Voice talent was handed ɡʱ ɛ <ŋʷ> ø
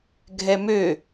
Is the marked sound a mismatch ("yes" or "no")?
yes